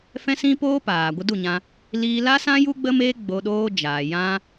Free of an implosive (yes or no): no